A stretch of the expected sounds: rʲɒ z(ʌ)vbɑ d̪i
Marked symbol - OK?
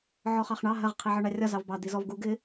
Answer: no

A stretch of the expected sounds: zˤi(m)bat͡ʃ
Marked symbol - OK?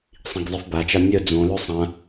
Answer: no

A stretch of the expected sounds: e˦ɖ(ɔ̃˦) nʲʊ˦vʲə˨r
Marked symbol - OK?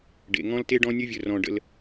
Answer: yes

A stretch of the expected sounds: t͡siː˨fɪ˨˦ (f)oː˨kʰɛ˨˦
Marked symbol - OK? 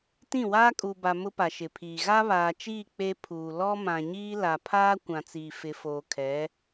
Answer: yes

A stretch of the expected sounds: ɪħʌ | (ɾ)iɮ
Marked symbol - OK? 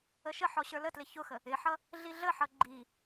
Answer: no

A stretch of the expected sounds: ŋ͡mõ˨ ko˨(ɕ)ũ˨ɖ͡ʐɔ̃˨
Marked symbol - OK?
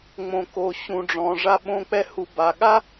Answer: yes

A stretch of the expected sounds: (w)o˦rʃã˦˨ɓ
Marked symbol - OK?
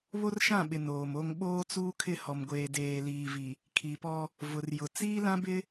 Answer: no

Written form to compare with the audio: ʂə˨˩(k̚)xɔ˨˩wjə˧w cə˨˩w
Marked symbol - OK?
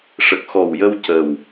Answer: yes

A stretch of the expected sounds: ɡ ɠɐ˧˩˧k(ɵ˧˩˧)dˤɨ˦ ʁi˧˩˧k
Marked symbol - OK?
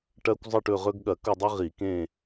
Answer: no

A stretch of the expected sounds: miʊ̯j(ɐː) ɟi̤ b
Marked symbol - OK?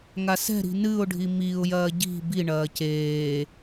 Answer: yes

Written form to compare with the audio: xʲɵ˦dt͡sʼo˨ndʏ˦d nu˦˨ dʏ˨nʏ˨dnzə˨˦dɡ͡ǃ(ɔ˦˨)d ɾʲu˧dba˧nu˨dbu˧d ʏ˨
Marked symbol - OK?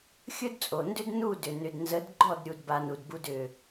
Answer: yes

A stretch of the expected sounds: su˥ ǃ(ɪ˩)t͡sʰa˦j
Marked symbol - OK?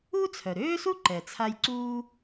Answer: no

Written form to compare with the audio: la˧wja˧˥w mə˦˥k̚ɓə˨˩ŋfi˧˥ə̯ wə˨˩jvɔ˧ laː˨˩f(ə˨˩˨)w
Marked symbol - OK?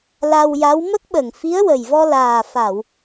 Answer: no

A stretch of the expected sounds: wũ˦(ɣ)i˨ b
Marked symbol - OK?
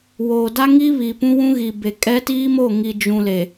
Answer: yes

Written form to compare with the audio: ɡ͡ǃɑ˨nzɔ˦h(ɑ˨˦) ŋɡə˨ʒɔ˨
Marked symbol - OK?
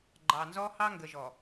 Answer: no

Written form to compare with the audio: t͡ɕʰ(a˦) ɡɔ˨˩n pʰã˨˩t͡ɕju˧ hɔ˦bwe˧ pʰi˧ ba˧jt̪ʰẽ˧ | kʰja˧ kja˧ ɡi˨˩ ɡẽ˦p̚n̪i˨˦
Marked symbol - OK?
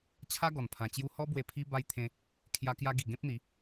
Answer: yes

